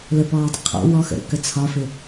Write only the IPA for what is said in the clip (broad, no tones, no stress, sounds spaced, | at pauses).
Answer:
l ə p ɔː dˤ ə̰ qʰ ɔ̰ w ɔ x ə̰ ɾ ə̰ k ə t͡sʰ ɒ f ɪ